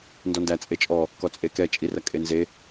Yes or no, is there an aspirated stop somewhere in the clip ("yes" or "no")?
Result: no